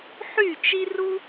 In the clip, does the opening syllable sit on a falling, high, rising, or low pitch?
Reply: falling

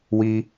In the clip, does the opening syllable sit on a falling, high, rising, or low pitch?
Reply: high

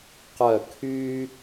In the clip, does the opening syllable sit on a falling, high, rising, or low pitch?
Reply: falling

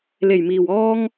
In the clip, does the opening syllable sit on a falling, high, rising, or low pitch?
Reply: low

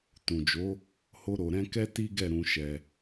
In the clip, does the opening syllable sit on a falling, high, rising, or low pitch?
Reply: low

